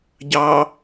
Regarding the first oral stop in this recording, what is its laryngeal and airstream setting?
plain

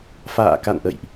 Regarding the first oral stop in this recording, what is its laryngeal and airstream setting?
plain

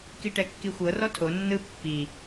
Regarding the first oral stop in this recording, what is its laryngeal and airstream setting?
plain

